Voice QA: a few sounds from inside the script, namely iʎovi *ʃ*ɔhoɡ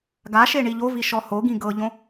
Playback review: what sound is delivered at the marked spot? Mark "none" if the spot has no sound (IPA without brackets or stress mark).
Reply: ʃ